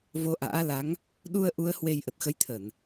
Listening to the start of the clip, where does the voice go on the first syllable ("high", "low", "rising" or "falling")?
rising